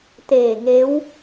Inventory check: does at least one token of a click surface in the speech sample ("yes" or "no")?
no